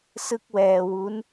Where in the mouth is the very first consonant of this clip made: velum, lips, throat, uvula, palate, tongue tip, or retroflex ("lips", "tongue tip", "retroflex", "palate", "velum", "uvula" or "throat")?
tongue tip